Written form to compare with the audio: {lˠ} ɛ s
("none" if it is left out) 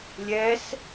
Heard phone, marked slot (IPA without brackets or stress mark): lʲ